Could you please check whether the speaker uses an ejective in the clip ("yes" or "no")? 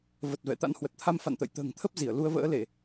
no